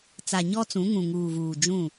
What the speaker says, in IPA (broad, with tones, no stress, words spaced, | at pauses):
t͡sa˨ɲɔ˦ t͡sũ˨˦ ŋũ˨ŋuː˨vuː˨ d͡ʒũ˦˨